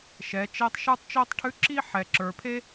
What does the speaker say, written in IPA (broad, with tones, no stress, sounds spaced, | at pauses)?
ʃ ɛ˨˦ t͡ʃ ɛ˦ tˤ ʃ ə˞˦ tˤ t͡ʃ o˦ tˤ ʈʰ ʉ˦ ǁ i˦ ħ ɛ˨ ǁ ə˞˨ pʰ e˦